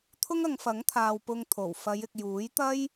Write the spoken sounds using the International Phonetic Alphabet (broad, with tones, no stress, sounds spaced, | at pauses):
t̪ʰ ʊ˥ ŋ ɐ˨˧ ŋ f ɐ˨˥ ŋ t̪ʰ aː˨ w p ʊ˧ ŋ t̪ʰ o˨˩ w f ɐ˨˧ j ɪ˨ k̚ j uː˨˥ j t̪ ɐ˥ j